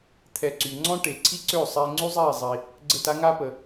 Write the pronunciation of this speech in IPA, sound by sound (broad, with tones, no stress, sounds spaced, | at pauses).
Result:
t̪ʰ ɛ˧ ǀ y˨ ŋ͡ǀ ɔ̃˦ ʈ e˨ ǀʰ i˦ ǀ ø˦˨ sˤ eː˧ ŋ͡ǀ y˦ zˤ eː˦˨ zˤ i˨ | ɡ͡ǀ ə˦˨ t a˦ ŋ a˦ p ə˨